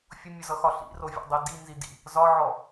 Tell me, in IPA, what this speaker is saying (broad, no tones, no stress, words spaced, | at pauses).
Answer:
fʲʊmʲʊzʌxɒ ɬḭrovʲɔ̰dˤi dinzidḭ | zɒʕɔ